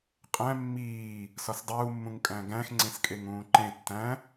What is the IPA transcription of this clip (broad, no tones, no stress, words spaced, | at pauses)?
qʼæ̃ mːiː | sɒsdˤuːmːũŋ kʼæ̃ɡæ̃xŋ͡ǀẽskʼeŋ ũːǃẽ tːæ̃